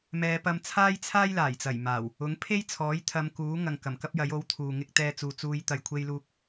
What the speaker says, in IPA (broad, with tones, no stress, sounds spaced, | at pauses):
m ɛː˨˧ p ɐ˧ m t͡sʰ aː˥ j t͡sʰ aː˥ j l aː˨˩ j t͡s ɐ˨˩ j m aː˨˩ w | ʊ˨˥ ŋ pʰ e˥ j t͡sʰ ɔː˨˥ j t̪ʰ ɐ˨˧ m k uː˨˥ ŋ ɐ˨ ŋ k ɐ˨˩ m k ɐ˥ p̚ j ɐ˨˥ j o˨˥ w t̪ʰ uː˨ ŋ ɪ˧ k̚ t̪ ɛː˧ t͡s uː˨ t͡s uː˨˧ j t̪ ɐ˧ j kʷʰ e˥ j l uː˥ k̚